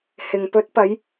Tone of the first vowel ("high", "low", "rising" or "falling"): low